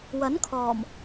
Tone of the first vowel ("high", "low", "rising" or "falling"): rising